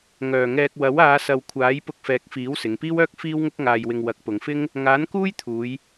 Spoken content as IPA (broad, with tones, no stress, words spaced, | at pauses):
ŋœː˨˩ŋɛː˧k̚ wɐ˨˥w aː˨˧sɐ˨wkʷʰaː˨˥j pʊ˧k̚fɛː˨˥k̚fiː˨˥w sɪ˨˧ŋpiː˥wœː˥k̚ fiː˥wŋʊ˥k̚ŋaː˧jwɪ˧ŋ wɐ˨˥k̚pʊ˨˧ŋfɪ˥ŋ | ŋaː˨˥nkuː˥jt̪ʰuː˨˧j